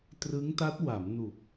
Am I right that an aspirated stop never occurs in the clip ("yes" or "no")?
yes